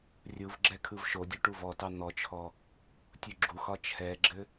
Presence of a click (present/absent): present